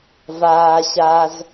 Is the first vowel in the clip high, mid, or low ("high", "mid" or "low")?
low